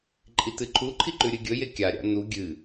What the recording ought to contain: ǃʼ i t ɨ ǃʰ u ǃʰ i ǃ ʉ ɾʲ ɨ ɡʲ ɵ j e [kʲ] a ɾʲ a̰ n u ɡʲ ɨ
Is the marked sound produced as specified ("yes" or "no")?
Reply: yes